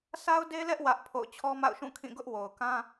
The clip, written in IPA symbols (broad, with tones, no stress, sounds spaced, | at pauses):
s a˦ ʊ̯ d e˦ l ɛ˦ ʔ w ä˦ ʔ pʰ o̰˦˨ ʊ̯ t͡ɕʰ ɔ˦ m a̰˦˨ ʊ̯ ʃ ũ˦˨ kʰ ĩ˦˨ ɡ ʊ˦ ʔ w o˨ ʊ̯ k ã˦